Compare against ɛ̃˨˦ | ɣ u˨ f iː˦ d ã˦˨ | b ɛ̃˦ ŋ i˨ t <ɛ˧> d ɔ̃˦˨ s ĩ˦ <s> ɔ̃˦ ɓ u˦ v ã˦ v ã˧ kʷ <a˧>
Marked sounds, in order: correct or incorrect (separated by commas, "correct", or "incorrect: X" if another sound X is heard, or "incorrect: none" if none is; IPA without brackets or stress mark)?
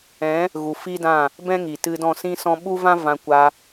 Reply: incorrect: ɨ˧, correct, correct